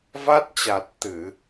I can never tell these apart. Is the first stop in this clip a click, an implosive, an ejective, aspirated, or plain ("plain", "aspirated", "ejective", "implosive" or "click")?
plain